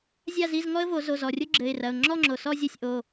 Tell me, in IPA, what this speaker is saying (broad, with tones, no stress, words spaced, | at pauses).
zʲa˥˧zi˧˥˧zŋɔ˥ə̯vo˨˩˦ zo˩˧˩zɔ˩rʲo˥ ɡ͡ǁɘ˩˧˩ɪ̯rɐ˩˧˩ʊ̯ ŋ͡ǁɔ˥˧ŋ͡ǁo˩ sɔ˥˧zʲɐ˥˧sʲ ʔo˩˧˩